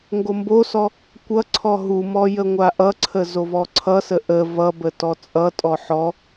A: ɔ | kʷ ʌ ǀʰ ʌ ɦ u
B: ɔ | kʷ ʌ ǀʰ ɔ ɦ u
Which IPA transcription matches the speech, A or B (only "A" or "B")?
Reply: B